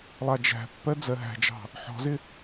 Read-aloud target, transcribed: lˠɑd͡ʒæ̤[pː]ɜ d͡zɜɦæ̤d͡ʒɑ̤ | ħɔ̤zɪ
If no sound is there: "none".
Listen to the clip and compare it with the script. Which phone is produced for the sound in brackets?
pː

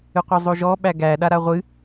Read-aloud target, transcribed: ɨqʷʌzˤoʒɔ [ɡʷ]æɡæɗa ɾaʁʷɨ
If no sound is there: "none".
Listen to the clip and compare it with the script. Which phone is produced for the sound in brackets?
ɓ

